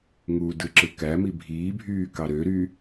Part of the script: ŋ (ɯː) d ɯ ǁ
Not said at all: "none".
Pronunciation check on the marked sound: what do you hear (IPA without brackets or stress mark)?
uː